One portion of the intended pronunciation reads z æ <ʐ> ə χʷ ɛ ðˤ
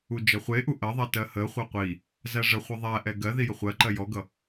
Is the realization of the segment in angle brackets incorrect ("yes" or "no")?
no